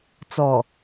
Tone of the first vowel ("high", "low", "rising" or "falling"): low